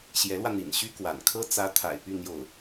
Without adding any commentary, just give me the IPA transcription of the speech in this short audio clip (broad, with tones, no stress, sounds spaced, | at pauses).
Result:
ɕ j ɛ˧˥ l w ä˧ n̪ ḭ˨˩ n ɕ y˥ k w a̰˨˩ n kʰ ɤ˥ t͡s ä˧˥ t̪ʰ a̰˨˩ ɪ̯ p y˥˧ n̪ j o˥˩ ʊ̯